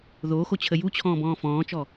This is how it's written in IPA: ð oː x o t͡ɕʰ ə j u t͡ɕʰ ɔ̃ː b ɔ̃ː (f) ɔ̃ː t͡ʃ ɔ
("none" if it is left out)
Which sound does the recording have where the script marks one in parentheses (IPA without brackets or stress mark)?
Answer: f